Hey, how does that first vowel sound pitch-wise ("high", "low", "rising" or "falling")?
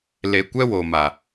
low